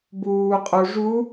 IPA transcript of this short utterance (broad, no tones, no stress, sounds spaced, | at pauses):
b uː qʼ o ʐ u